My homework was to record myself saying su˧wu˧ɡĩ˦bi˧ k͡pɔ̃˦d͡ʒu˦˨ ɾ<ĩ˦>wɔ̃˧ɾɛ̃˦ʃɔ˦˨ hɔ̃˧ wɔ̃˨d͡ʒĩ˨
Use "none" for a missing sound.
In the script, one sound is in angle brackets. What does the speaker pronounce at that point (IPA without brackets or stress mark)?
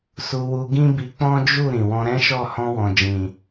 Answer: ĩ˨